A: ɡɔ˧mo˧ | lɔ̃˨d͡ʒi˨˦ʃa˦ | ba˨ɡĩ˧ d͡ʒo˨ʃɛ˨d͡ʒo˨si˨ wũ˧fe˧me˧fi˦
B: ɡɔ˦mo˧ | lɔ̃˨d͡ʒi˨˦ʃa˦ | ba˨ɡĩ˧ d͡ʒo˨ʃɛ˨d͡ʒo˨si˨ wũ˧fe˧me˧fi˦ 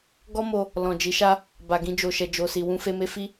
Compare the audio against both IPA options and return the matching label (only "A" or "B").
B